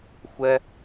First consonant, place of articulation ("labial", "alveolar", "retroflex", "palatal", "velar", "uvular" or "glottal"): velar